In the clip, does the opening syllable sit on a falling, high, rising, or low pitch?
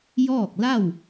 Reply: falling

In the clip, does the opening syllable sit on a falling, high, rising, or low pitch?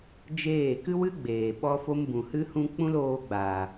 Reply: falling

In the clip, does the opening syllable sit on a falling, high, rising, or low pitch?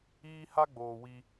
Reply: high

